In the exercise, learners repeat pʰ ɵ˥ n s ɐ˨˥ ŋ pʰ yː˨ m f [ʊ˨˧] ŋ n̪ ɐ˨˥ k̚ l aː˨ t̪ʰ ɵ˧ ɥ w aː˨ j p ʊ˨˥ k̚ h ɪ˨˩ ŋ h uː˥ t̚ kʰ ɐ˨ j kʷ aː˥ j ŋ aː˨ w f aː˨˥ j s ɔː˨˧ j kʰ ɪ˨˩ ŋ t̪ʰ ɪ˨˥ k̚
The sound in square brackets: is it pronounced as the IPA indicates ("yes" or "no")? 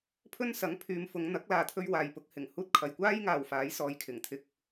yes